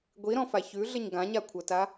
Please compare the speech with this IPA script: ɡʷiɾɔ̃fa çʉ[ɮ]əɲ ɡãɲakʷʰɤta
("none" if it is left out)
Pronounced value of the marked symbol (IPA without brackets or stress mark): ɮ